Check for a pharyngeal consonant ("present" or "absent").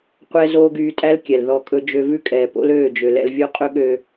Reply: absent